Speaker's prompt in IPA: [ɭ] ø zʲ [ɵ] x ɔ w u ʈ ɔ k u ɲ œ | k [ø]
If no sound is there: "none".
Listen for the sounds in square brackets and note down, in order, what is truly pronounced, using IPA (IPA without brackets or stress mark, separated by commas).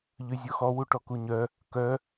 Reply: ʎ, ɔ, œ